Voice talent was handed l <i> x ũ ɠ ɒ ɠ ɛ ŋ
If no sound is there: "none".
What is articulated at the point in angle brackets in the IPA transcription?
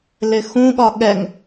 ɪ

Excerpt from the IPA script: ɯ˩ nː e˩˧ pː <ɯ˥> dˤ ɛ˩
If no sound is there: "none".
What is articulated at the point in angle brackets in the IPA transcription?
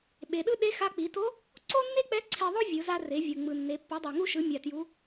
ɯ˩˧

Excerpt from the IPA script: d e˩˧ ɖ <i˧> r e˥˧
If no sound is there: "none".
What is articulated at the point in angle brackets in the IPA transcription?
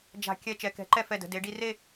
i˧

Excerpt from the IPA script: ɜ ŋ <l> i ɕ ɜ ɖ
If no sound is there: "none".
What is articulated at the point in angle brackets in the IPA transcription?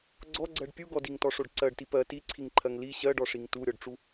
l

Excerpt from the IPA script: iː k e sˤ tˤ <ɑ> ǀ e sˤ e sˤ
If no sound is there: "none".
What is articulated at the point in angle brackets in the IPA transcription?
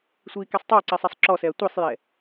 ɑ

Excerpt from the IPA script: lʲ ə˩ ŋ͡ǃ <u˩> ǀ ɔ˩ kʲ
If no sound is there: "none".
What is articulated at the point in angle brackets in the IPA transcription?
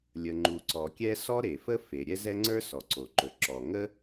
u˩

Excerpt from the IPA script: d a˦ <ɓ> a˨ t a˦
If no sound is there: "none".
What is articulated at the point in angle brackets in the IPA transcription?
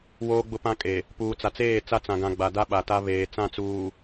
ɓ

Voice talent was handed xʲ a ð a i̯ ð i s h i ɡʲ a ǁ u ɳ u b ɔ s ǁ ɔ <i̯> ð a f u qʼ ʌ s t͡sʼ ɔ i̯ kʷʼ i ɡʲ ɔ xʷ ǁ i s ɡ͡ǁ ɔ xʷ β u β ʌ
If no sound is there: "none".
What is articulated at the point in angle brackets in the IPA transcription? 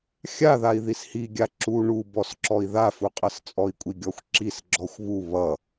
i̯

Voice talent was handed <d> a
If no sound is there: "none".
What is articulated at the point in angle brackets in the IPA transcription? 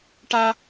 ʈ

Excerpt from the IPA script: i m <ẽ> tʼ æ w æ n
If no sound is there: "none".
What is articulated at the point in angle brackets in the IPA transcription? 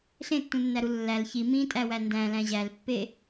ĩ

